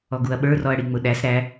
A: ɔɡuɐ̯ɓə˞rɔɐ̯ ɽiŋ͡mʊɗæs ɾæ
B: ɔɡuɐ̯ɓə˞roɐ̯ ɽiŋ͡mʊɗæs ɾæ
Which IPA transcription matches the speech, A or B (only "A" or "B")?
A